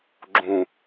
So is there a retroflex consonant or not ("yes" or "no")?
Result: no